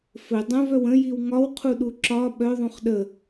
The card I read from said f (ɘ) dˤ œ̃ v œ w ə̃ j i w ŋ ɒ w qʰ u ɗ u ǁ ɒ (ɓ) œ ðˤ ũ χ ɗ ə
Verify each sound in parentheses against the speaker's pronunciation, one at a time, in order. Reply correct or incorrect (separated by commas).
correct, correct